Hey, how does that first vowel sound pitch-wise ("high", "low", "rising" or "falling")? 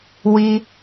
high